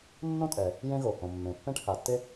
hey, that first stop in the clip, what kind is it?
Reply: ejective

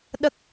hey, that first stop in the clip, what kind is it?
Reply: implosive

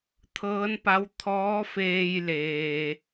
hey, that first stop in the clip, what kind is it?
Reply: aspirated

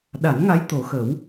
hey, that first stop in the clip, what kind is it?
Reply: implosive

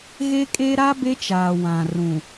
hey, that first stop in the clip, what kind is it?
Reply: ejective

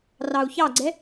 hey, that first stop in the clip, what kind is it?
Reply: click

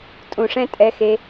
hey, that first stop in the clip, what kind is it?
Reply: ejective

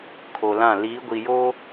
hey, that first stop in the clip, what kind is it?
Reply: aspirated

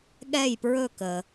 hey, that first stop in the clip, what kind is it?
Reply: implosive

